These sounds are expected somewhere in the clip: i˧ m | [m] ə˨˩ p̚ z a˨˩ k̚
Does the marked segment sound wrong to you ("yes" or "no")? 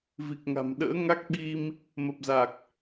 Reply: no